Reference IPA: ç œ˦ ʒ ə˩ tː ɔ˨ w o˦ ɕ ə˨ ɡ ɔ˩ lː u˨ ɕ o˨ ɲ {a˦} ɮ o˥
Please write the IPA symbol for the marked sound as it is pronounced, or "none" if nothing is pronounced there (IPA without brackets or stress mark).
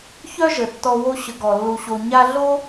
a˦